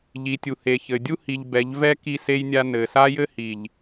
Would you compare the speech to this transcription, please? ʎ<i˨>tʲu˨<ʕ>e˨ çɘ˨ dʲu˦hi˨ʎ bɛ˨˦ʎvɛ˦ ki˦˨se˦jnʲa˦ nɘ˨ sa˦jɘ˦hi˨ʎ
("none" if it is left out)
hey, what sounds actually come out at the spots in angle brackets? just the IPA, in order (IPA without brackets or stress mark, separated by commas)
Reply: i˨, h